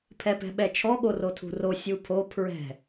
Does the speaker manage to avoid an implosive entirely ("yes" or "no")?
no